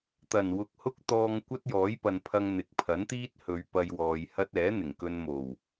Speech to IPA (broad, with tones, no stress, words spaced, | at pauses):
t̪ɐ˨˩n wʊ˧k̚hʊ˥k̚ t̪ɔː˧ŋ kʷɐ˥t̚jɔː˨˥jpɐ˨npʰɐ˧ŋ n̪ɪ˨˥k̚pʰɐ˨˥nt̪iː˥t̚ hɵ˨˧ɥ pɐ˧j wɔː˨jhɐ˥t̚ ɛː˨˥n̪ɪ˨˩ŋkɵ˧nmo˨˩w